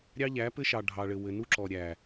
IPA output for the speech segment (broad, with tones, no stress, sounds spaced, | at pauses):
ɾʲ ɑ˦ ʎ æ˨˦ p ɘ˦ ʃ ɑ˨ ɖʱ ɑ˨ ɭ ɘ˨ w ɘ˨ n u˦ ǁ ɔ˨ ɾʲ æ˨